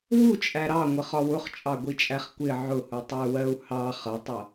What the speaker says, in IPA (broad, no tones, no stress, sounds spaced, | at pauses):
w u t͡ʃʼ æ ɾ ɑ ŋʷ ə χ ɒ w ʊ χ t͡ʃʼ ɑ ɡʷ i t͡ʃʼ æ χ kʷ ɪ ʕ ʊ h u tˤ ə u̯ w ɜ u̯ h ɑ χ ʌ tˤ ʌ